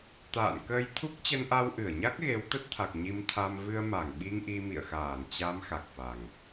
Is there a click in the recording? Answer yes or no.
no